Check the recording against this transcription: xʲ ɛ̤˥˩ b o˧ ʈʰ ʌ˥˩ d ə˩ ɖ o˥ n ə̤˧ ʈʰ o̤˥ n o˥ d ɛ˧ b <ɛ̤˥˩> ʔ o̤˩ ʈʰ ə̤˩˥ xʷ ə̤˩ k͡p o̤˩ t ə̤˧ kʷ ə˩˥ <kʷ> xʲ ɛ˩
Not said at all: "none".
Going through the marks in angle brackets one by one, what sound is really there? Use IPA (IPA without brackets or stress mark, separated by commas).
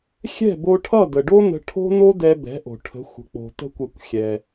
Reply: ɛ̤˩˥, kʷ